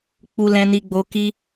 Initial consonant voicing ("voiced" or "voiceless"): voiceless